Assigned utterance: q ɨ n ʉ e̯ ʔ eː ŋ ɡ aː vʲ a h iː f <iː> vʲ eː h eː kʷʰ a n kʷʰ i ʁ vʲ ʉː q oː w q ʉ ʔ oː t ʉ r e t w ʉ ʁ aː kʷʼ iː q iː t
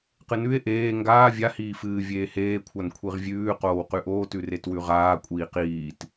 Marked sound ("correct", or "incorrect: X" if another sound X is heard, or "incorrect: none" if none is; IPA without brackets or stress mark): incorrect: ɨː